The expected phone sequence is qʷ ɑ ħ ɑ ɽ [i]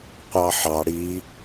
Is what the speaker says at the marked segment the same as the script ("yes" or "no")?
yes